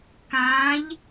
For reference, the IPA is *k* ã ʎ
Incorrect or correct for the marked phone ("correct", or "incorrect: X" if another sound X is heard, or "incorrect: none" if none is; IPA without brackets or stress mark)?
correct